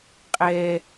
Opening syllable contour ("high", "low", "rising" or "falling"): high